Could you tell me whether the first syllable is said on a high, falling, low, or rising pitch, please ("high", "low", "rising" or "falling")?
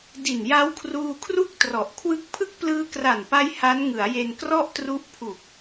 low